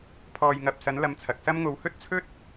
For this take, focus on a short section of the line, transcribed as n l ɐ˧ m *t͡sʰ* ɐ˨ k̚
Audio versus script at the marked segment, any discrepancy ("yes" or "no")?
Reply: no